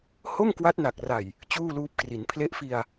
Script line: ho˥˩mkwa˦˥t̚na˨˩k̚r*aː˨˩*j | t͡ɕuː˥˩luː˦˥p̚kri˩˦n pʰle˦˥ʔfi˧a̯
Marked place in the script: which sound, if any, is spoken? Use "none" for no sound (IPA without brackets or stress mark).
a˨˩